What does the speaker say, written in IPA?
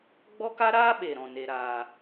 ɡ͡b ɔ˦ k a˦ ɾ aː˦ ɓ e˨ ɾ ɔ̃˨ n e˨ ɾ aː˨

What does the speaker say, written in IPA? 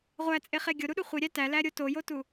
ʁʷ æ t͡sʼ e χ e ɡʲ o ɾ u ɗ u χʷ i ɾʲ æ t æ l æ ɾʲ o t o j o t u

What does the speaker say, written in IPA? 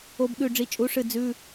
o˧ b ɠ ʉ˧˩ ɖ͡ʐ i˩˥ t͡ʃʼ u˩˥ ʂ ɨ˧˩ d͡z ʉ˧˥˧

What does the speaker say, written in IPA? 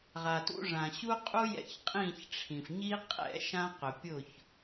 ʁ a˨ t ṵ˧ ʐ ã˨ ɕ u˦ qʼ u˦ j ɛ̰˧ ç qʼ ĩ˦˨ ç ʈ͡ʂʰ ĩ˨ f ɲ i˦ qʼ ɛ̰˦˨ ʃ ã˧ q ʊ˨ pʲ ʊ˦˨ ç

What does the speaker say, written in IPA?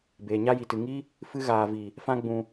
b eː˨ ɲ a˧ j i˨ t ɨ˨ ŋ i˦ | f ɨ˦ ɣ aː˨ v i˨ | f ã˦ ɡ͡b ũ˧

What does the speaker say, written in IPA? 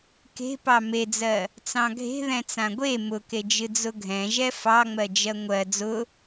k e̤ p ɑ m e d͡z ɜ | t͡s ɑ̃ ɡʱ e̤ ð ɛ̃ t͡s ã ɡʷ e m ʊ k e d͡ʒ ɨ d͡z ʊ ɡʱ ɛ̃ ʒ ɛ f ɑ ŋ͡m ɜ d͡ʒ ɜ ŋʷ ɜ d͡z ʊ

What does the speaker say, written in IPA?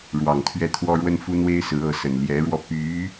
ɻ w ɑ˨˩ ŋ t̪ʰ ɥ ɛ˥˩ t̪ʰ w ɔ˥ ɻ w ə˥ n f u˥ n̪ w e˥ ɪ̯ s ɹ̩˧˥ ɤ˧˥ s ə˨˩ n l j ɛ˧˥ ɻ w ɔ˧ p y˧˥

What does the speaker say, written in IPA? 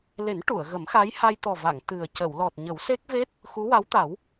l e˨˩˦ n ʈ u˨˩˨ ə̯ ɣ ə˨˩˦ m x a˧˥ j h a˧ j t̪ ɔ˨˩ v a˨˩˨ ŋ t̪ ɨ˨˩ ə̯ c ə˨˩˨ w l ɔ˨˩ t̚ ɲ ə˨˩˦ w s e˦˥ k̚ v e˦˥ t̚ | x u˧˥ w a˧˥ w t̪ a˨˩˦ w

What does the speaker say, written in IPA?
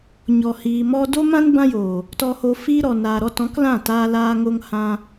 ɲ ɔ˨ h iː˨ m ɔ˧ d o˦ m ã˦ n b ã˦ j oː˨ | t ɔ˧ h oː˧ f iː˦ ɾ ɔ˨ n aː˨ ɾ ɔ˧ t ɔ̃˨˦ k l ã˦˨ t aː˧ l aː˧ ŋ o˧ ŋ h ã˧

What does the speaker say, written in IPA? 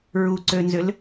ɹ u ǀ ø n z ʏ l

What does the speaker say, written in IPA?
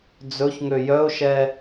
d͡z ɵ ç ŋ ø j œ ʊ̯ ʃ ɛ

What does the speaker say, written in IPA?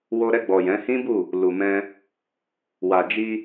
w o˧ ɾ ɛ˧ ɡ͡b ɔ˨ j ɛ̃˨˦ h ĩ˦ b u˦˨ | l u˨ m ɛ̃˧ | w a˨ d͡ʒ i˧

